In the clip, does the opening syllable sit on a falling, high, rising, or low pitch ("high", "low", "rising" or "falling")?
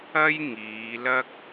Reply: high